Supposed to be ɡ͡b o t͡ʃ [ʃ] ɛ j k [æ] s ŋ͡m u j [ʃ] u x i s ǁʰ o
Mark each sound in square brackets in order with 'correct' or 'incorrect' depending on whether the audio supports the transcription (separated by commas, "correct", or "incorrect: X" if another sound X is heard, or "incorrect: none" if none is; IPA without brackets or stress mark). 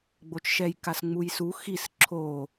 correct, incorrect: a, incorrect: s